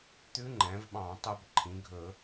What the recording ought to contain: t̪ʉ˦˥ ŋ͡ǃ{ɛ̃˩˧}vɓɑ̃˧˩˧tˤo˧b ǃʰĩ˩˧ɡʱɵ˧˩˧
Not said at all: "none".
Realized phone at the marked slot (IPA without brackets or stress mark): ɛ̃˩˧